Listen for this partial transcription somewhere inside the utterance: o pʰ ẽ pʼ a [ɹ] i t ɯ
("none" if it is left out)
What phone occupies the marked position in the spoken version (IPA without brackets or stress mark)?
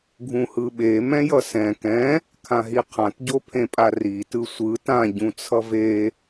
r